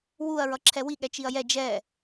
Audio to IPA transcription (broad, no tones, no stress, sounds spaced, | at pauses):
w u ɐ̯ ɹ ʌ ǁʰ ɛ w i ɠ ɛ t͡ʃ i ɐ̯ j ɛ d͡ʒ ɛ